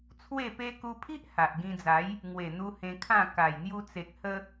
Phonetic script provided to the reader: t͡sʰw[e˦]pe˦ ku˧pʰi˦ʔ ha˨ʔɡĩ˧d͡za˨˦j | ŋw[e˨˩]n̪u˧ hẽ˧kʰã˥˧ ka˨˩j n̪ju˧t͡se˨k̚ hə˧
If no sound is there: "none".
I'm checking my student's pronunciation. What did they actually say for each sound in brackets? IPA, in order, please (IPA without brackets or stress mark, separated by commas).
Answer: e˥˧, e˨˩